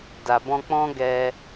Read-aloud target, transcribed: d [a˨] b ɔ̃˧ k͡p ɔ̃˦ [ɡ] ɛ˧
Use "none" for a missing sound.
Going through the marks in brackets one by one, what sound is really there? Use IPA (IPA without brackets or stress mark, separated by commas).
a˨, ɡ